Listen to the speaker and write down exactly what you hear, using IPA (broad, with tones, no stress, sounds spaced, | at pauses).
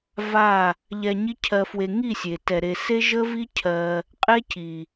v a˦˨ | ʎ ɛ˧ ɲ i˦ cʰ ɜ˧ f w e˧ ŋ i˦˨ sʲ e˨ t ɛ˨ ɾ e˨ s e˦ ʒ ə˦ v i˦ cʰ ɜ˧ | qʼ e˦ c i˨